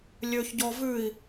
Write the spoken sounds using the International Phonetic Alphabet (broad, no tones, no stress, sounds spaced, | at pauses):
lʲ ø ç ɟ ɔ v ʉ i̯